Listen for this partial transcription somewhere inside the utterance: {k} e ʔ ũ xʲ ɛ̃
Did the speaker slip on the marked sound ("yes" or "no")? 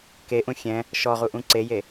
no